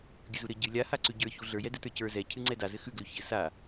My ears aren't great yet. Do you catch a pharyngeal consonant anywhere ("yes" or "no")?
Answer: no